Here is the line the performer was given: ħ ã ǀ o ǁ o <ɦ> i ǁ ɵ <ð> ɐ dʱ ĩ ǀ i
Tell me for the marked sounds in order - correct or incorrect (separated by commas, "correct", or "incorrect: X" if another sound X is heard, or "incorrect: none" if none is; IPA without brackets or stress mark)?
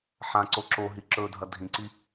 correct, incorrect: dʱ